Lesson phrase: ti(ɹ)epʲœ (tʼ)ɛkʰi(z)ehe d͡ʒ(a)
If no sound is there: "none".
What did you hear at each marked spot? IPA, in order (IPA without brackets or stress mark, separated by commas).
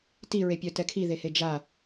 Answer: ɹ, t, ð, a